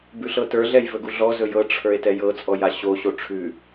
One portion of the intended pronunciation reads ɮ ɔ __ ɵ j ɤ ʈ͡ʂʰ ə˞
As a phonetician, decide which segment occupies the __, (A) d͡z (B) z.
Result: B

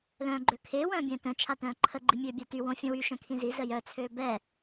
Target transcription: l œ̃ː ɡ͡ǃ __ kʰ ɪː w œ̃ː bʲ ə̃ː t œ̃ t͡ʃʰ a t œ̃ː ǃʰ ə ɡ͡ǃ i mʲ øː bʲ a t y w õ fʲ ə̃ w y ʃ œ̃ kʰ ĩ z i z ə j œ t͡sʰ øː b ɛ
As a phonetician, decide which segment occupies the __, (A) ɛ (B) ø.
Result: B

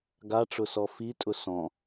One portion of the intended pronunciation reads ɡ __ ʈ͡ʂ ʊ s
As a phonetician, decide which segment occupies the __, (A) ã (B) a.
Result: B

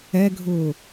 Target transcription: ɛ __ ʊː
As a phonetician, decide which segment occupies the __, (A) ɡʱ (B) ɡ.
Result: A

